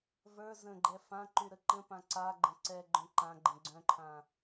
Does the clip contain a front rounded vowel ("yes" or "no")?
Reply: yes